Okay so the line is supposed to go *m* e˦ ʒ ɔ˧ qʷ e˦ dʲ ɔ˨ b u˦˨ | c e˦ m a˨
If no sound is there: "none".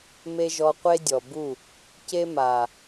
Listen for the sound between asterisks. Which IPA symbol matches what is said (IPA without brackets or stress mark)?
m